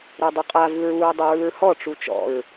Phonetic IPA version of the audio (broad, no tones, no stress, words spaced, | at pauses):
ɾɛdˤuqʼa vɯɹuɹ dˤɯɹɯɹhɔ ʈ͡ʂut͡ʃɔ̰ɹ